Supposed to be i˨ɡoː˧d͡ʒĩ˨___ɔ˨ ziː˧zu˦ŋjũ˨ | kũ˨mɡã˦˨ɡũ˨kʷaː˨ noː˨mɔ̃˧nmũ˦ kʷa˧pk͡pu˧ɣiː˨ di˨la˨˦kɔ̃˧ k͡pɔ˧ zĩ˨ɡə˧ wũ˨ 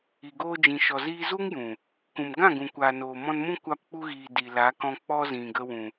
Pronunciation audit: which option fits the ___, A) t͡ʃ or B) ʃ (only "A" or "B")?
B